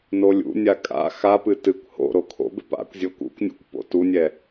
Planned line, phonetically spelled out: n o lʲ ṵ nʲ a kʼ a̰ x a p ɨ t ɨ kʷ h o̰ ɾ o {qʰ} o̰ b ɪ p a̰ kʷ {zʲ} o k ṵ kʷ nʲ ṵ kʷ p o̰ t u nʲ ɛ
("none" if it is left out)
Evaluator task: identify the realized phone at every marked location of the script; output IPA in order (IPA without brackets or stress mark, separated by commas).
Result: kʰ, zʲ